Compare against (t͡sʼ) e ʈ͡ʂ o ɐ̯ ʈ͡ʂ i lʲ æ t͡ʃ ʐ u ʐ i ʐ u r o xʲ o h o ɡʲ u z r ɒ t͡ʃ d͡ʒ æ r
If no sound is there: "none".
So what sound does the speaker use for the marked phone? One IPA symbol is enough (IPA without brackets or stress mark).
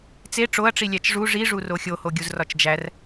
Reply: t͡s